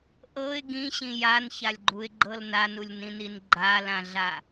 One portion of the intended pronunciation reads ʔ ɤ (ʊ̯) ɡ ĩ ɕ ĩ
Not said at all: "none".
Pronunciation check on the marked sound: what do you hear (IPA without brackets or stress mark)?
ɪ̯